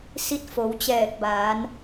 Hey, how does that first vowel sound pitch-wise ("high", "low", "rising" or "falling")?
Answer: rising